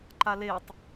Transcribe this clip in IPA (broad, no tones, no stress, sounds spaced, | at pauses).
ǃ a l e tˤ